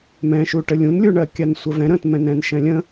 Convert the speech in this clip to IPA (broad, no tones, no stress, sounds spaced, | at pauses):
m ɛ̃ ʃ u ʈ ə lʲ ũ n lʲ u ɳ ɜ kʲ a n sʷ ə v ɛ̃ ɾ ə̃ t m ɛ̃ n ɛ̃ n ʃ ɛ̃ lʲ ə̃